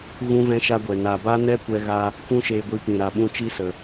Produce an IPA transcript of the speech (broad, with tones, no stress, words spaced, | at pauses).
ɣũ˦vɛ̃˦ʃa˦ɡʷɛ˨ na˨ba˦ nɛ˦kʷɛ˧ɣa˧ | kʷũ˦ʃeː˧ɡʷi˧pĩ˨ ɾa˨ɓũ˧ t͡ʃi˦sə˨